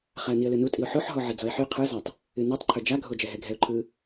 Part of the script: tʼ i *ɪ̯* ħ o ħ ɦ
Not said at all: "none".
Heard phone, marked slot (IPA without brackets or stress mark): ʊ̯